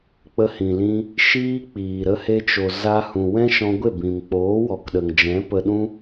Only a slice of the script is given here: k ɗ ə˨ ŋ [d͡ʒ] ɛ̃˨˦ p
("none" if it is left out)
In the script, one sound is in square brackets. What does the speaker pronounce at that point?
d͡ʒ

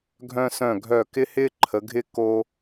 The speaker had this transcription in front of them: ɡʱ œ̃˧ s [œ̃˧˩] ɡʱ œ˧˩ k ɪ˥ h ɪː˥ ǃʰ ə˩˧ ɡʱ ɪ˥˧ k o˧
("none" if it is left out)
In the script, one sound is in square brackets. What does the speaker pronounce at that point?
œ̃˧˩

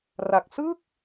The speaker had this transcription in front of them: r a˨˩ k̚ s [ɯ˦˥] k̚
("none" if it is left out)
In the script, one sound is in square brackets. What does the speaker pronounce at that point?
ɯ˥˩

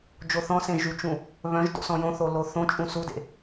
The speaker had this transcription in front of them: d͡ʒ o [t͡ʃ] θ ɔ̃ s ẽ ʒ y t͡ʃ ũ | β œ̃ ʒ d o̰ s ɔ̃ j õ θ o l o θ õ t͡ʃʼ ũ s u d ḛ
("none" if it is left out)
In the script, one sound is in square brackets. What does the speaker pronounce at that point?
none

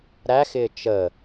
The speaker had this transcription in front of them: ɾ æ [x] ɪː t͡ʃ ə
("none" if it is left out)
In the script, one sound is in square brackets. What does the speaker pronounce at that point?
x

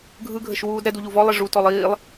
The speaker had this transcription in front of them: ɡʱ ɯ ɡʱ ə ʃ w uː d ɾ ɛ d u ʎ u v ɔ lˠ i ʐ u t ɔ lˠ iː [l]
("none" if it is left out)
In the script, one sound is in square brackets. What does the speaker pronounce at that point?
lˠ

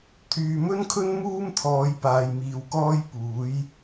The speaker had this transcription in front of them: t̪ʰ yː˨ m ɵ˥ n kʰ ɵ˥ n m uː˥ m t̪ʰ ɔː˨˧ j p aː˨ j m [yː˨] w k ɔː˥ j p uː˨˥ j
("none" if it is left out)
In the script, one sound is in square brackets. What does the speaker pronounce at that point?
iː˨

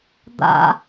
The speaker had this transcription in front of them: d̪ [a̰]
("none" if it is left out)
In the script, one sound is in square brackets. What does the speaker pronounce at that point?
a̰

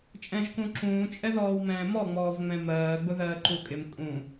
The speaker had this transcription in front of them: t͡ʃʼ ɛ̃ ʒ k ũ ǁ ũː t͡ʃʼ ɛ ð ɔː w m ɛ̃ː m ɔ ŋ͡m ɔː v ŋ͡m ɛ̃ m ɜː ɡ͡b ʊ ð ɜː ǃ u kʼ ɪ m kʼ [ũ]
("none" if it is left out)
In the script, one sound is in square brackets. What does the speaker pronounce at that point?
ũ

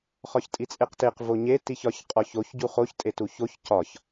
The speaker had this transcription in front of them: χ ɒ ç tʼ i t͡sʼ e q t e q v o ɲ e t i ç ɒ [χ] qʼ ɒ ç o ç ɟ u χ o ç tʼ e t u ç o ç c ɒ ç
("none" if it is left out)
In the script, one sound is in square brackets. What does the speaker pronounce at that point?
ç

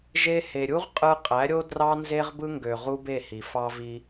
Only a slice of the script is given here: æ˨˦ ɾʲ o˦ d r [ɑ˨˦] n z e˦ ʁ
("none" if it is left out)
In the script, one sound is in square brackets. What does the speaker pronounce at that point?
ɑ˦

